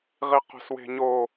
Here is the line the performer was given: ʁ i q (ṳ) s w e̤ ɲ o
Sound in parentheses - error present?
yes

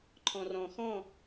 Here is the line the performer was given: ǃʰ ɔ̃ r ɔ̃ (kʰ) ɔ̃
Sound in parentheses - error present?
yes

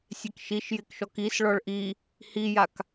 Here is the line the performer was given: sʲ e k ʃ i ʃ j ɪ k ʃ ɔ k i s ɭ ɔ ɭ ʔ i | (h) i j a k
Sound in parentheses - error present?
no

